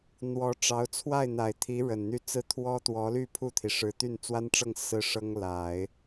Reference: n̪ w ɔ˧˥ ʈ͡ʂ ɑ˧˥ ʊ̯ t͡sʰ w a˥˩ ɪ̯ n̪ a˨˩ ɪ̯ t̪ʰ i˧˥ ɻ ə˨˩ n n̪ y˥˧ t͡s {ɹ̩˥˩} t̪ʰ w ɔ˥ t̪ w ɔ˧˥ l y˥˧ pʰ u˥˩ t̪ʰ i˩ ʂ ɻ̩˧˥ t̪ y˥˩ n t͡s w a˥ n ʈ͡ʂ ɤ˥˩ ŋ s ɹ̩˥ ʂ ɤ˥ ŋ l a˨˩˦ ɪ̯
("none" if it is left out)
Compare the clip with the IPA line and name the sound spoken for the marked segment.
ɹ̩˥˩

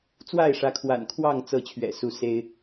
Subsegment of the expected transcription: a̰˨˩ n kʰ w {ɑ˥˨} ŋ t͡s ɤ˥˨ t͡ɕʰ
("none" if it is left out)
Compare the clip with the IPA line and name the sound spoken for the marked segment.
ɑ˥˨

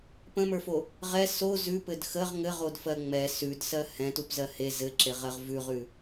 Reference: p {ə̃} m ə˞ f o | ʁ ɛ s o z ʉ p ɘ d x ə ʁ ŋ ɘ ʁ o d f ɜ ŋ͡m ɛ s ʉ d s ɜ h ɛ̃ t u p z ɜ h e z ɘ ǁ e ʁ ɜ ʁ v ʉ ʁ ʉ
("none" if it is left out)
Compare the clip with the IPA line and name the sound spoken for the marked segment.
ə̃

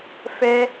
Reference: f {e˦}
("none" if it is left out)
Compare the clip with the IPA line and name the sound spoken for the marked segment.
ɛ˦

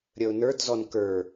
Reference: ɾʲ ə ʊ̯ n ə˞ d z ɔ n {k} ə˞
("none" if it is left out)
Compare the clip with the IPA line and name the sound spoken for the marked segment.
k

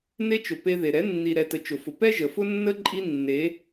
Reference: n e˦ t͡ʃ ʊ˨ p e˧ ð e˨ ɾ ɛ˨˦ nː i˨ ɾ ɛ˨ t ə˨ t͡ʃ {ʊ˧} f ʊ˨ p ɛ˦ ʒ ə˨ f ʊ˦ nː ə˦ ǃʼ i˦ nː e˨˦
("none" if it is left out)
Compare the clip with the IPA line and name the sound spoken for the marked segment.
ʊ˨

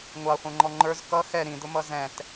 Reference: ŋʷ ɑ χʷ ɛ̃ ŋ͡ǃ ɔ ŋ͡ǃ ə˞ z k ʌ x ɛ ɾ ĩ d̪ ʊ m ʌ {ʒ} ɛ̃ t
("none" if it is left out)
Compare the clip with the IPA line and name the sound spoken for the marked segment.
z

